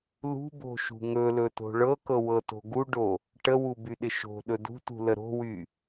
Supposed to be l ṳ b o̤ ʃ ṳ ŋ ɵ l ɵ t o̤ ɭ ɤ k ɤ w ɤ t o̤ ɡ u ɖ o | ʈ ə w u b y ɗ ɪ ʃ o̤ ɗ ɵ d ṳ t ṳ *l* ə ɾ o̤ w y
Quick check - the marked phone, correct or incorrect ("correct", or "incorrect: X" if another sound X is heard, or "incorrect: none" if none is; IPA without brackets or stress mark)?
correct